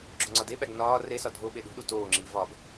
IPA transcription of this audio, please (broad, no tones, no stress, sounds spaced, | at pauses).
ɡ͡ǁ o ŋ͡ǀ ɒ d e ɓ æ ɡ n ɒː r e s ɒ dʱ o ɓ e ɗ ṳ ɗ u t oː ŋ͡ǁ iː v ɒ ɡ